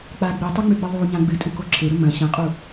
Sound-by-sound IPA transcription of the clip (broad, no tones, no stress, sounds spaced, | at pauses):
k͡p a ɡ͡b i tˤ o ŋ͡m ʉ ɡ͡b ɨ ðˤ u ɲ ã ɡ͡b ɨ tʼ u k o ǁʰ e ɾ ɵ m ɐ̃ ɕ ɐ̃ qʼ u